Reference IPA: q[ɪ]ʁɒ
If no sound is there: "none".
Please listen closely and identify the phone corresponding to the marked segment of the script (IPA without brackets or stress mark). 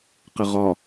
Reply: ɪ